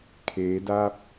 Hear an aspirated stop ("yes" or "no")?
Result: yes